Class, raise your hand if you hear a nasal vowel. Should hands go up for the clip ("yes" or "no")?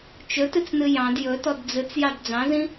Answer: yes